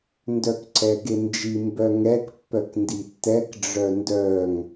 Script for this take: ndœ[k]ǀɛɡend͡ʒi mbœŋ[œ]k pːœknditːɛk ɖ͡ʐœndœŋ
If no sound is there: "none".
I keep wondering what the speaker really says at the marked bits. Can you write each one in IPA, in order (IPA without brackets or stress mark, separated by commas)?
k, ɛ